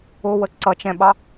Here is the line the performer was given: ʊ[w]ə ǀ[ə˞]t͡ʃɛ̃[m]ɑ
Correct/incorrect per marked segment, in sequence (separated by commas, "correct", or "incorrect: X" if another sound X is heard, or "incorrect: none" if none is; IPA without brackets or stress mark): correct, incorrect: ʌ, incorrect: ɓ